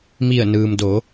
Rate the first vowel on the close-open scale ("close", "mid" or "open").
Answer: close